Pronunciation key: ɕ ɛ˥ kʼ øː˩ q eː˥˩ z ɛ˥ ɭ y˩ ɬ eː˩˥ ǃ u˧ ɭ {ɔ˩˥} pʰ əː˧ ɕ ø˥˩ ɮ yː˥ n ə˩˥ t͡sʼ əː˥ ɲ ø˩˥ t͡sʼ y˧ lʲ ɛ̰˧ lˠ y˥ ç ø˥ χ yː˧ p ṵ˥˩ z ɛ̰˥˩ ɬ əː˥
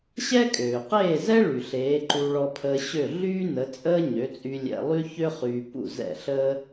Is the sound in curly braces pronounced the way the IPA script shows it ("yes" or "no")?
no